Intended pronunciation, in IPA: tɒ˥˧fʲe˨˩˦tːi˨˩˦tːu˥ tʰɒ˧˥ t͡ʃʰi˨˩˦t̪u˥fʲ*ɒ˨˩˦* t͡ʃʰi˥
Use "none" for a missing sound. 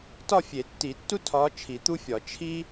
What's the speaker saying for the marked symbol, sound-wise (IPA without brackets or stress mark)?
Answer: ɒ˨˩˦